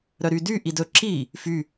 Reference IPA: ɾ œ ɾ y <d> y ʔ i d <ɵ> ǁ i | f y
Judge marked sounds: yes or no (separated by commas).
yes, yes